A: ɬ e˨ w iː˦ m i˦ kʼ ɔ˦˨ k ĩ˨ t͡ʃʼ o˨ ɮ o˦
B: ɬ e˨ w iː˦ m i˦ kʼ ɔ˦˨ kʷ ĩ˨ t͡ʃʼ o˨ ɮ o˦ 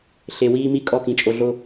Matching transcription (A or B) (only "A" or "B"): A